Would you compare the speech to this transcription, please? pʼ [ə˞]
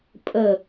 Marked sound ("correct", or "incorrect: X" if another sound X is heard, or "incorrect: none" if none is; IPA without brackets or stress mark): incorrect: ə